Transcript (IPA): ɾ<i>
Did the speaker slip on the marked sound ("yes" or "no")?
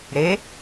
yes